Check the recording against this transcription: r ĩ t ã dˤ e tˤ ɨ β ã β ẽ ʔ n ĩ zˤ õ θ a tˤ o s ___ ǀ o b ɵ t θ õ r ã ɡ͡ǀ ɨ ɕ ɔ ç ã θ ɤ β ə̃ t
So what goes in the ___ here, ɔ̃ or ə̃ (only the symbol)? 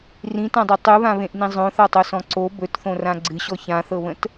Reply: ɔ̃